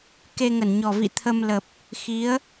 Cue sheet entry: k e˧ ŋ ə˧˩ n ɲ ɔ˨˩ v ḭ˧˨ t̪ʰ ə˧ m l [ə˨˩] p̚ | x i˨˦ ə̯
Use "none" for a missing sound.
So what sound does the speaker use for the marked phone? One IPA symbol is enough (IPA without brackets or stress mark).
ə˨˩